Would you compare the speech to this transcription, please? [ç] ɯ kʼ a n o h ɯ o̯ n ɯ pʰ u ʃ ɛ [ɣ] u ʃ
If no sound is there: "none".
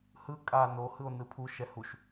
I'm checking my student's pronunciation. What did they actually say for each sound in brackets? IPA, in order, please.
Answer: h, h

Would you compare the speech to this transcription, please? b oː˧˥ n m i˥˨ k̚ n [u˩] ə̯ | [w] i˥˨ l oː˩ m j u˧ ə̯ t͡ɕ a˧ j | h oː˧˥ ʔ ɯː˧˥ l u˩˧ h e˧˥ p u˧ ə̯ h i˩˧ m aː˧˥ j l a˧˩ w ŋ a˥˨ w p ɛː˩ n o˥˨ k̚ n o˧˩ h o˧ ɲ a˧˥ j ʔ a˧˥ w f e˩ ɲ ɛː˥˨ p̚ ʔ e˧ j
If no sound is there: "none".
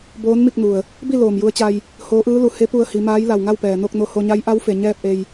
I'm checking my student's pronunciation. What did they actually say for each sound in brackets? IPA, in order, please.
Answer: u˩, b

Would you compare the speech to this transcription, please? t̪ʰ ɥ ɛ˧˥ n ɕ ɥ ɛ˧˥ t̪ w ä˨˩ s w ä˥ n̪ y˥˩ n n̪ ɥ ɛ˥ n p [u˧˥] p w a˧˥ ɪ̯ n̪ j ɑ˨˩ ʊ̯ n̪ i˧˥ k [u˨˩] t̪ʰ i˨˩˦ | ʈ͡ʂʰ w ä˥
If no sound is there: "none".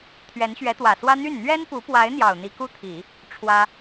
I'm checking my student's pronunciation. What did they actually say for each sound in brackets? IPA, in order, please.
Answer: u˧˥, u˥

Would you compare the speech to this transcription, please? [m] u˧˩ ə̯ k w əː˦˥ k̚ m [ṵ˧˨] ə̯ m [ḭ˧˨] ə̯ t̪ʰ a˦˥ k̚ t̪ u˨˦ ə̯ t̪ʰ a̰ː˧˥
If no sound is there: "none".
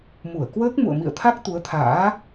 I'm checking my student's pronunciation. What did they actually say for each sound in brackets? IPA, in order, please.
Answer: m, ṵ˧˨, ḭ˧˨

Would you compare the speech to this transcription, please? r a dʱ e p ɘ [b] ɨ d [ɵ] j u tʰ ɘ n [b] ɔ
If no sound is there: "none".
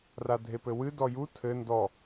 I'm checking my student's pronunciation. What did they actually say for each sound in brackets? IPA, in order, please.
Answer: w, ɔ, d

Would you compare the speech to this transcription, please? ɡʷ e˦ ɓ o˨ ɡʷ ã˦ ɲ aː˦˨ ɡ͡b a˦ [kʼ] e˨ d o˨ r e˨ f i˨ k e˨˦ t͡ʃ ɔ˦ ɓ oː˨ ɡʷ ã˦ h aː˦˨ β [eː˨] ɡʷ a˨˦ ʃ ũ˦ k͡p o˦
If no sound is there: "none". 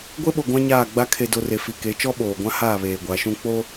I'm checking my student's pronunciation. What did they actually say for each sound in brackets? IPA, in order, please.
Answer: kʰ, eː˨

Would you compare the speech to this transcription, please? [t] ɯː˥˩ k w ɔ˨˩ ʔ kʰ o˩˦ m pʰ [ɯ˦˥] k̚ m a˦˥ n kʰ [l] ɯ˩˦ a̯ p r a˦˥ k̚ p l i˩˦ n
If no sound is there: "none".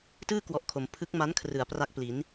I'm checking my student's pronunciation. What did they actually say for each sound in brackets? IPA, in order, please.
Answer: t, ɯ˦˥, r

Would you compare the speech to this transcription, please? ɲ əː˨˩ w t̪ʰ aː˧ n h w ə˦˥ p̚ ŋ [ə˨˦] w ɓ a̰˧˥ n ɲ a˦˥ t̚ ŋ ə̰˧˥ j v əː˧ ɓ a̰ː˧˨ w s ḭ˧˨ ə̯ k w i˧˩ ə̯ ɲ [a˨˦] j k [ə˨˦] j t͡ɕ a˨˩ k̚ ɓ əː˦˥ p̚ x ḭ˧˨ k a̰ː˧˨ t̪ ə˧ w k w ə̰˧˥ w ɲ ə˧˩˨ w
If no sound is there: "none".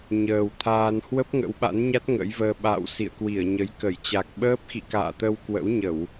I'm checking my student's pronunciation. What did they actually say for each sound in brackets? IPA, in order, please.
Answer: ə̰˧˥, ə˨˦, ə˧˩

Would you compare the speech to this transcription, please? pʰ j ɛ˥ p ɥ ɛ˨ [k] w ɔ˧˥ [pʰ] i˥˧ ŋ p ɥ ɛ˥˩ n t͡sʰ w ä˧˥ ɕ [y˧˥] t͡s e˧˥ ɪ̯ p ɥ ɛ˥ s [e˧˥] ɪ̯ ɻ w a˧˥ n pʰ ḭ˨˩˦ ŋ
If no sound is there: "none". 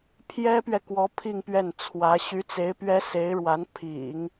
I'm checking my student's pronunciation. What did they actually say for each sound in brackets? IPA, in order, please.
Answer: k, pʰ, y˧˥, e˧˥

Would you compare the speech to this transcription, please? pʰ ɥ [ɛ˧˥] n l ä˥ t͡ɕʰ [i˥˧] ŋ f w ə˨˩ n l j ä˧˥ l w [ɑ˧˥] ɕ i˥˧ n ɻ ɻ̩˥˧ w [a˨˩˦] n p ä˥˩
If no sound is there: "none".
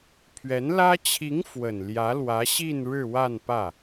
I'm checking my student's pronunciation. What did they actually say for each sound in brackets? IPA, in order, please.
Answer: ɛ˧˥, i˧˥, ä˧˥, a˥˧

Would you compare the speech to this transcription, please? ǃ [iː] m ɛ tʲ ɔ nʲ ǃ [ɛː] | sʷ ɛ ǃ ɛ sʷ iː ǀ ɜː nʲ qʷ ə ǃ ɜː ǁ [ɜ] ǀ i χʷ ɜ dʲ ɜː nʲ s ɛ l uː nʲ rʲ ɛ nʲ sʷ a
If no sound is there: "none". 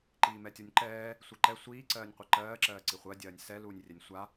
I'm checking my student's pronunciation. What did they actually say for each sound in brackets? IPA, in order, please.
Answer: iː, ɛː, ɜː

